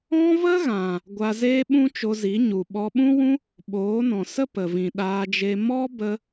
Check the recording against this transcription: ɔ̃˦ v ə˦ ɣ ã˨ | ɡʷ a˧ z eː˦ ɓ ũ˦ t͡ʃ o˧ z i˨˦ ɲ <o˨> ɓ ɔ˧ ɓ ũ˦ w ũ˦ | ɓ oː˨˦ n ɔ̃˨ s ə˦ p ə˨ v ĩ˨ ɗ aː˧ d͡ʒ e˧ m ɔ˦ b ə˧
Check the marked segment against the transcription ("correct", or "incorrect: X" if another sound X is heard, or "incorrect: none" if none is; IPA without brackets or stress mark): incorrect: u˨